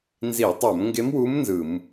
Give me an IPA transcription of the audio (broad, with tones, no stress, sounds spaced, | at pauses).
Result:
n z i˧˩˧ tˤ o˧˩˧ m ŋ ɡ e˧˥ m w u˧˥ m n z ɯ˧˩˧ m